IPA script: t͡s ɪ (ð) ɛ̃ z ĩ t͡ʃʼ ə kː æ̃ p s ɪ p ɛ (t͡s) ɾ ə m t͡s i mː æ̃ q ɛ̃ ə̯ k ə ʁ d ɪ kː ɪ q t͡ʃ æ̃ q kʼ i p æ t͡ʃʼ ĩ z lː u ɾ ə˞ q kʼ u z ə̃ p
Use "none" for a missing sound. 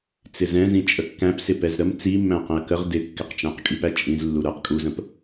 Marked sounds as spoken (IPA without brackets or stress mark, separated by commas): z, z